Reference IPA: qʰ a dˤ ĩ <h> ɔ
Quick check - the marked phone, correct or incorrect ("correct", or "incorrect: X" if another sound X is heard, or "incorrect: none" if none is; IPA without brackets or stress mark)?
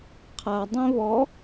incorrect: β